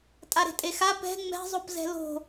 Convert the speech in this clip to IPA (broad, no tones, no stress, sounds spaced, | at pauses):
tʼ a ɾ e̤ tʼ e x a p ɛ̤ ŋ͡m ɛ̤ zˤ o p z ɛ̤ l o̤